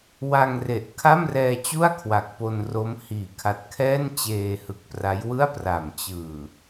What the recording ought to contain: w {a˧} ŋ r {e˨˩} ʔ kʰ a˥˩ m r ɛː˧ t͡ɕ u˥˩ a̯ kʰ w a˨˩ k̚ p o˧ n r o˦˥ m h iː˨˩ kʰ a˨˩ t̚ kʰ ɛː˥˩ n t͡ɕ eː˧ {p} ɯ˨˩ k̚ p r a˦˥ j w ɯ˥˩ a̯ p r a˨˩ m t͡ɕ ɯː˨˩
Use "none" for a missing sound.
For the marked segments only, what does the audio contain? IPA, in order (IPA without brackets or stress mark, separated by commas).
a˧, e˨˩, h